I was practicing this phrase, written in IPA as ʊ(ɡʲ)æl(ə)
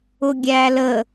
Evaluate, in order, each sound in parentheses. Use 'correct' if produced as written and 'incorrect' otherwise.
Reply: correct, correct

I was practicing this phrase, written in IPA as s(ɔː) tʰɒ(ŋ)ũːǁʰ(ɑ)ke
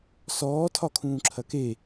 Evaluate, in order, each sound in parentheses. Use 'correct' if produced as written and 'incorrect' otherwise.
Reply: correct, incorrect, incorrect

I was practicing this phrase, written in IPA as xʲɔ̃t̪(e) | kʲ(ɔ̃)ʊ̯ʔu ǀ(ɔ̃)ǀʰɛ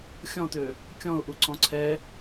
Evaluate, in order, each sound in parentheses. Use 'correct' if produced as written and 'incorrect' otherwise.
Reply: incorrect, correct, correct

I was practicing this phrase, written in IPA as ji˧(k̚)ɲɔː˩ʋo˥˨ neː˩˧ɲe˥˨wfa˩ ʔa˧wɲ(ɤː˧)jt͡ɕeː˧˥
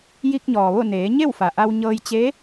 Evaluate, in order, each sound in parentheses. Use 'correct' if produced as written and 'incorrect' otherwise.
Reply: correct, correct

